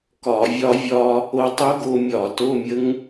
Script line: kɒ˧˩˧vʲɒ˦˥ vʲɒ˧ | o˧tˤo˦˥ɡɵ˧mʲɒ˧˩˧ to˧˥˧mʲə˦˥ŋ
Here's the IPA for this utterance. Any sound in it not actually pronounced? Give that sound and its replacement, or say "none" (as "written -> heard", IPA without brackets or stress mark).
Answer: ɵ˧ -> o˧